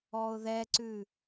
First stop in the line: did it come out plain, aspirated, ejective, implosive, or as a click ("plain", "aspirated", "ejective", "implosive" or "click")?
click